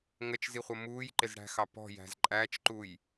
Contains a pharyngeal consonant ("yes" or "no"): no